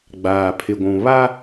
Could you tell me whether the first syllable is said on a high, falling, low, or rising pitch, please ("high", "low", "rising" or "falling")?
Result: low